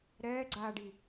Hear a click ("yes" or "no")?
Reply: yes